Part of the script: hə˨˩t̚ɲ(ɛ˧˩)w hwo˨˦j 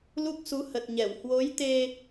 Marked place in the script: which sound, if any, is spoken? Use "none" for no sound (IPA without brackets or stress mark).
ɛ˧˩